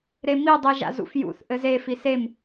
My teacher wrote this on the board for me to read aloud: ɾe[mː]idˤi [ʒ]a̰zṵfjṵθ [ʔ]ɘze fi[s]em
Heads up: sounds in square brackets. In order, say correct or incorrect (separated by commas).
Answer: incorrect, correct, correct, correct